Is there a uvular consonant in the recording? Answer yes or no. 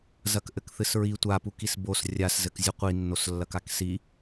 yes